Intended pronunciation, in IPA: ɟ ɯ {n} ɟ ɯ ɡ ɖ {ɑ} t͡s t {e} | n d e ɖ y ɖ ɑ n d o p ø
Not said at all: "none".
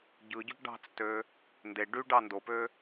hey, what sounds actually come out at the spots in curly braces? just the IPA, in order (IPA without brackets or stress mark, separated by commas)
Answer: none, ɑ̤, ø